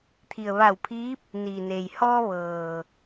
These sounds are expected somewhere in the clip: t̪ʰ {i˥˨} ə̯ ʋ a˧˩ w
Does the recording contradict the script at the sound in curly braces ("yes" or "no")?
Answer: yes